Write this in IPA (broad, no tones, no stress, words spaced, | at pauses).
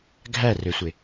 ɡʱærøsʷe